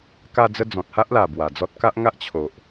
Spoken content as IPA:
k a˧ d͡z ə˧ d͡z ɔ̃˨ t̚ h a˦ ʔ l a˨˩ b w a˨˩ d͡z ɔ˦ t̚ k a˦ ʔ ŋ a˦ ʔ t͡ɕʰ o˨ ʔ

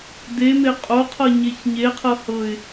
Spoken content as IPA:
d e m e qʼ o qʰ ɤ ɲ e ç ɲ e qʰ ɤ h ɤ ɪ̯

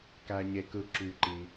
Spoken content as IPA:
k æ˩ ɲ e˩ k ɯ˩ ǁ y˩ ǃ i˩

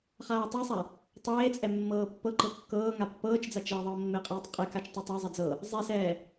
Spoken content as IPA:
χ aː tˤ ɤ sˤ a | tˤ eː t͡sʼ ɛ mː ɤː pː ɤ ǃ ɤ kː ɤː ŋ a pː ɤː t͡ʃ d͡z a t͡ʃ ɛː ðˤ ɤː mː e qʼ ɛː tˤ qʼ e k a t͡ʃ tˤ e tˤ a zˤ e d͡z ɤ | zˤ e s ɛː

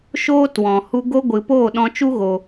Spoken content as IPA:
ʃ oː˦ t w ɔ̃˨ h u˧ ɡ o˧ ɡʷ ɨ˨ p oː˦˨ ɗ ɔ̃˧ t͡ʃ u˦ ɣ o˨

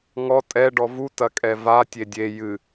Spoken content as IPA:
ŋ ɔ tʼ ɛ ɖ ɔ v u t ɐ kʼ ɛ v a tʲ e dʲ e j ɨ

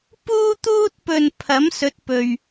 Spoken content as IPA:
p uː˥ t̪ uː˥ t̚ p ɵ˧ n pʰ ɐ˨˥ m s ɵ˨˥ t̚ p ɵ˨ ɥ

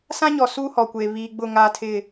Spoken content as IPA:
s ã˦ ɲ ɔ˨ s u˦ h ɔ˨ kʷ eː˨ β iː˨ ɡ͡b ʊ˦˨ ŋ aː˦ tʰ ɪ˦˨

